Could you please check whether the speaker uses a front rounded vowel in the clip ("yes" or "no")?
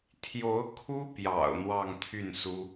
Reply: yes